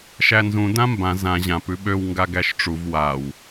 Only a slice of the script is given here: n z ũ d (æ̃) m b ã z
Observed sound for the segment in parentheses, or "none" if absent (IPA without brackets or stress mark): ã